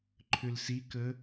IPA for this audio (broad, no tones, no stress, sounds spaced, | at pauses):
ǃʰ ʏ l s i k ə